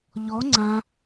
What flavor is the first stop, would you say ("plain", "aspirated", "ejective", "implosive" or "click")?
click